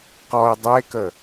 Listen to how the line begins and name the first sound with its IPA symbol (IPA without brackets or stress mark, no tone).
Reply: q